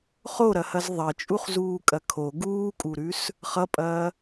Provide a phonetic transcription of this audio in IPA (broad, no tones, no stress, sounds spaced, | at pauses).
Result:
χ o ɾ ɐ h ɐ z ðˤ ɐ t͡ʃʼ u χ z uː kʼ ɐ kʰ o ɡ uː kʼ u ɾ ʉ s | χ ʌ pʼ ɐː